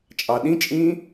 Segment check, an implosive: present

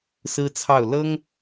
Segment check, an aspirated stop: present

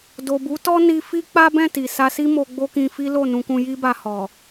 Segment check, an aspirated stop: absent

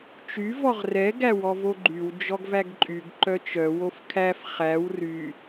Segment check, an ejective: present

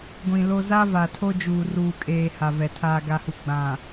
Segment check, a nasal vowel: present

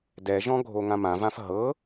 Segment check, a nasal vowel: present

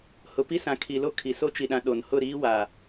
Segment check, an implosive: present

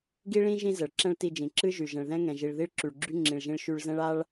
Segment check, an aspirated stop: absent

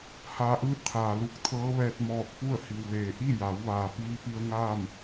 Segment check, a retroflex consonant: absent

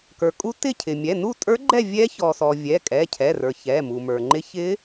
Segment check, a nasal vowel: absent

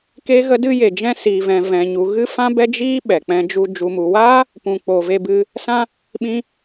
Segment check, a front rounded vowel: absent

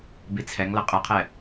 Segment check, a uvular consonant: present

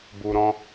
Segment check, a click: absent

